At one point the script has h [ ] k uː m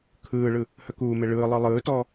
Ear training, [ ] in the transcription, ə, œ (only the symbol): ə